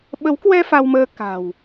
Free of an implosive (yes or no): no